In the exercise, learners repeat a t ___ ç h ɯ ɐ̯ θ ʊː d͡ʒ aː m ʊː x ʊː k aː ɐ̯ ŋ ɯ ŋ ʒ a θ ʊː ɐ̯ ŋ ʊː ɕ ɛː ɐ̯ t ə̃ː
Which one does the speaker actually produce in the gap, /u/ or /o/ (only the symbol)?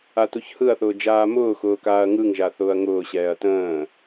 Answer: u